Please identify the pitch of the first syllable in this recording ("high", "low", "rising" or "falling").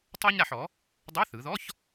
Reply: high